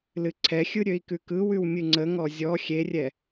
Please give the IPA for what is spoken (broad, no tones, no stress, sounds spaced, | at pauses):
l ɨ ǀʰ ɛ xʲ ɯ ɾʲ ø i̯ k ʉ k ɯ w ʉ w mʲ ɨ ŋ͡ǀ ə ŋ ɔ zʲ ɔ xʲ e rʲ ɛ